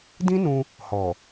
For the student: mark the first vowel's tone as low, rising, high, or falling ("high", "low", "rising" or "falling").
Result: high